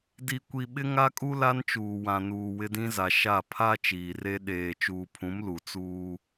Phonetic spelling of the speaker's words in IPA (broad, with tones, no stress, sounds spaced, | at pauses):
d i˨ kʷ i˨ ɓ ɪ˦ ŋ a˦ kʼ u˦ l a˦ n t͡ʃ uː˨ w ã˨ n uː˨ w ɪ˦ d ĩ˦ z a˨ ʃ a˦˨ pʰ a˦ t͡ʃ iː˨ r e˦ ɗ eː˨ t͡ʃ uː˨ pʰ ũ˨˦ m l u˨ t͡s uː˦